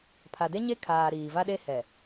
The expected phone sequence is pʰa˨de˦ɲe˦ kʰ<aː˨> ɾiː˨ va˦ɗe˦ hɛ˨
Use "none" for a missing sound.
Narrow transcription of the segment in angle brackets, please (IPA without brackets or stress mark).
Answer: aː˨